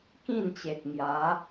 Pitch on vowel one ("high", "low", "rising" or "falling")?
falling